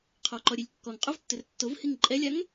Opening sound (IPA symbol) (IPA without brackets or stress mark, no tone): qʰ